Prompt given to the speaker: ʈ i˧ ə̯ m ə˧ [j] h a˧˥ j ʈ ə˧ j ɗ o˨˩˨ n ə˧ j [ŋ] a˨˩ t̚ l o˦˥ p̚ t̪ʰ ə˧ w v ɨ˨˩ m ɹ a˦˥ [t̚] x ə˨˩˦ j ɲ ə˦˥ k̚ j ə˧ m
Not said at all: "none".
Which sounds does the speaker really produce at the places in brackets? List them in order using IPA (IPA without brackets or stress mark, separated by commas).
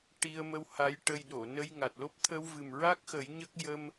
w, ŋ, k̚